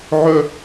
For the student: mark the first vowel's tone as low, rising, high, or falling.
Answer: high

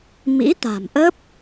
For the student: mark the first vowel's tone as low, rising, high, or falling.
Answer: rising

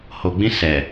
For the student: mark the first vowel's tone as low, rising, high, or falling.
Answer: low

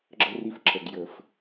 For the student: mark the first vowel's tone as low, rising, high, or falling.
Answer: high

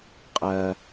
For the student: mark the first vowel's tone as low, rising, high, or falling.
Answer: high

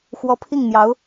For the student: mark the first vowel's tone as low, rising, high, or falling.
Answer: rising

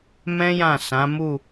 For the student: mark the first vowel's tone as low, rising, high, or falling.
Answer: high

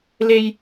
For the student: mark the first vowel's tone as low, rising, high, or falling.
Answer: high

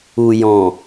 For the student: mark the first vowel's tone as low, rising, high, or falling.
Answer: low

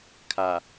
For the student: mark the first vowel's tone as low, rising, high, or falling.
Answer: low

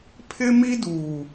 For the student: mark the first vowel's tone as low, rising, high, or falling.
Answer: high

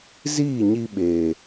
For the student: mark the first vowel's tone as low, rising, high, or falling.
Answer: falling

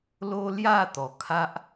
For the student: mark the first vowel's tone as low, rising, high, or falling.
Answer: high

